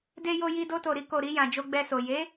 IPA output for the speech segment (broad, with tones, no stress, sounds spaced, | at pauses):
d e˧ j o˧ j i˧ d o˧ t o˨ ɾ i˧ k o˨ ɾ i˧ j ã˨ d͡ʒ o˧ ɡ͡b ɛ˧ s o˨ j e˨˦